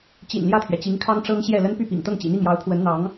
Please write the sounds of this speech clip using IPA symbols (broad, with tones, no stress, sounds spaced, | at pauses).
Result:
t͡ɕ ḭ˨˩ n l j ä˥˩ t̪ʰ ɥ ɛ˩ t͡ɕ i˧˥ ŋ kʰ ɑ˥ ŋ ʈ͡ʂ ɤ˥ ŋ ɕ j ɛ˥˩ l ə˥ n p y˥˩ p ḭ˨˩ ŋ t̪ ɤ˥˩ ŋ t͡ɕ ḭ˨˩ n̪ i˥˩ ŋ j ɑ˧˥ ʊ̯ pʰ w ə˧˥ n n̪ ɑ˧˥ ŋ